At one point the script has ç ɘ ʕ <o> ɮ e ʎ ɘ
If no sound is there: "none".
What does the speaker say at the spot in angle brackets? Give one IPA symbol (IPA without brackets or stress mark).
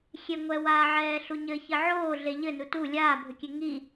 oː